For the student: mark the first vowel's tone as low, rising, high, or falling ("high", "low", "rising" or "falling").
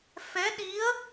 rising